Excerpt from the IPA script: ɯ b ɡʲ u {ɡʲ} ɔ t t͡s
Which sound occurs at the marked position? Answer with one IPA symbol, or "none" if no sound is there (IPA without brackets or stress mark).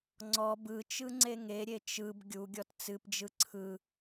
ɡʲ